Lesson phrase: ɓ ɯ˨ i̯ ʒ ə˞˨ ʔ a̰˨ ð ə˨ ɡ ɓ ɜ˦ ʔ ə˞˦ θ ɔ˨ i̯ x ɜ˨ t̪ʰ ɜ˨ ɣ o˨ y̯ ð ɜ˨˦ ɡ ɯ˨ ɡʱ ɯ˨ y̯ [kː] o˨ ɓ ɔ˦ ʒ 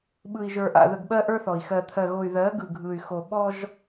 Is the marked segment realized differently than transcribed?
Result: yes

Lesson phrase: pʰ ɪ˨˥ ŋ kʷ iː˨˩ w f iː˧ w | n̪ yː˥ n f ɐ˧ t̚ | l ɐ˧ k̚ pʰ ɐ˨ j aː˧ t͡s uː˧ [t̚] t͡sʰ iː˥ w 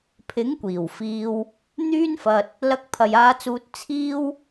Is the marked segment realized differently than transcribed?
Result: no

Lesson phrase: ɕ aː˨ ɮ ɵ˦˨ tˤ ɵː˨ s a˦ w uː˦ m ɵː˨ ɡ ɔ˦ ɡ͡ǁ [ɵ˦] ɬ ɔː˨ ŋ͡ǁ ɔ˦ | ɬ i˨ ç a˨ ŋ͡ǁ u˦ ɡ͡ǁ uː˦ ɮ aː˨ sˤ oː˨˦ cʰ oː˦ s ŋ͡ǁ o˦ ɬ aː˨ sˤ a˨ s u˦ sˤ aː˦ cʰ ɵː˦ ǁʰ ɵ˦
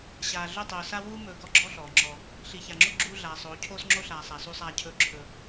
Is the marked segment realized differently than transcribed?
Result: yes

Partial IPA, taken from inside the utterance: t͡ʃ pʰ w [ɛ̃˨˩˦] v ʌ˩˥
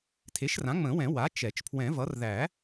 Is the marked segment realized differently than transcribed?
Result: no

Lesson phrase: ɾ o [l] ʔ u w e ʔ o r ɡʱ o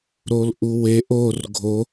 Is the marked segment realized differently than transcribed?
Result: no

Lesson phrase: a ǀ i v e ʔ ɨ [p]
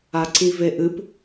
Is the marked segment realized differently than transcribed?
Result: no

